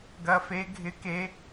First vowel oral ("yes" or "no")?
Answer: yes